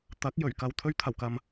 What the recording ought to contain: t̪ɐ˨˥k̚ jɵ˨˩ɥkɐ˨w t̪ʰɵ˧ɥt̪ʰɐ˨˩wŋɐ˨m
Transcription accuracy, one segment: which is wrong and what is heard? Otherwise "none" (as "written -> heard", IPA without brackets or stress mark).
ŋ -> k